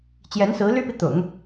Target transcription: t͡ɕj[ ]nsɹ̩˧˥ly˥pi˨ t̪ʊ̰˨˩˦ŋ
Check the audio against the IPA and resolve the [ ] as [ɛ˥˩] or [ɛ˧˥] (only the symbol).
ɛ˧˥